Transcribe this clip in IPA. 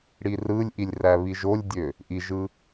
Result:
ɽ i r ɯ lʲ ʔ i lʲ r æ β i ʒ o lʲ dʲ ø | ʔ i ʒ ɯ

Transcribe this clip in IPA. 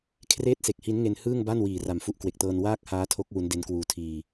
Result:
kʰ r eː˥˩ t̚ s e˨˩ k̚ h i˦˥ n ŋ e˧ n h ɯː˥˩ ŋ b a˥˩ n w iː˨˩ r a˨˩ m f u˦˥ ʔ k w e˨˩ k̚ t ɤː˧ n w aː˥˩ k̚ h aː˦˥ tʰ o˦˥ k̚ w u˦˥ n d e˦˥ n k w uː˧ tʰ iː˧

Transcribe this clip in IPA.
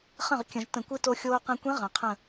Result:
χ ə̃˥˩ ʁ kʲ ə̃˧˩˧ ʒ t ə̃˧˩˧ kʷ ɨ˧˥ t o˧ xʲ oː˧ q ẽ˧ kʷ ẽ˧˥ ʁ ɐ̃˩ qʰ ə̃˧˩

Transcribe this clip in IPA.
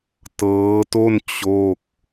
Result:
t ɤː˦˥ t o˥˩ n t͡ɕ o˥˩ k̚

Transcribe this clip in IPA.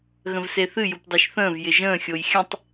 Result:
ɣ ə̃ v s e θ ɨ j u p dˤ e ʃ θ ə̃ː v j ɪ ʒ ə̃ː xʲ o j xʲ ə̃ tˤ

